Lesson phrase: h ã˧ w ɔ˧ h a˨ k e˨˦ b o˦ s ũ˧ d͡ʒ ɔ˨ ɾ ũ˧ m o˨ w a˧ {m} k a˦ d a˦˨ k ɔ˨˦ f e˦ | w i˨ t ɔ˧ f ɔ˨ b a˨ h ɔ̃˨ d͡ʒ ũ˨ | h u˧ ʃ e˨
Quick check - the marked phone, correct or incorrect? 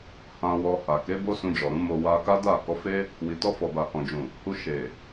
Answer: incorrect